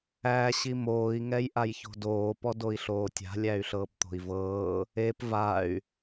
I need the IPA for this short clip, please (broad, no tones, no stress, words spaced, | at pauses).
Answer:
æ ɕimoːi̯ ŋɛjʔajço̤doː pɔdoi̯ɬoːtʲa̤ lʲæy̯ɬɤːpt̪o̤i̯vɤː | ep vay̯